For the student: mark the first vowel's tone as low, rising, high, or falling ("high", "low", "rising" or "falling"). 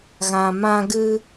low